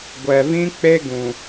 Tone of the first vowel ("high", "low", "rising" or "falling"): low